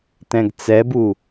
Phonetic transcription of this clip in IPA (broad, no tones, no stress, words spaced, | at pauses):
tɛ̃ɡt͡sɛbu